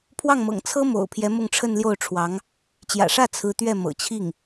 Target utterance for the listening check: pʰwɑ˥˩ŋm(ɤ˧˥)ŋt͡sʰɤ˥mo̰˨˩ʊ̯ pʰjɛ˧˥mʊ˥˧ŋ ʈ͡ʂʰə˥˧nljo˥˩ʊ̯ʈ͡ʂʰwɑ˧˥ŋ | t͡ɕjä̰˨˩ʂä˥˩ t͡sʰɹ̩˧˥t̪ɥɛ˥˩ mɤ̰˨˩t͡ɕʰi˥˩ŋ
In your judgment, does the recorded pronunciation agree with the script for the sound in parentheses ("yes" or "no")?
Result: no